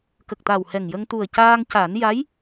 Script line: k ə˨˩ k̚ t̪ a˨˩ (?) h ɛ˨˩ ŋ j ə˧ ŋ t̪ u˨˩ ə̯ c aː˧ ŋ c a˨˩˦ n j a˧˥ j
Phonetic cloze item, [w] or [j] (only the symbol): w